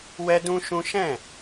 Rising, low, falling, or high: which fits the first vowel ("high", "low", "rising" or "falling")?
high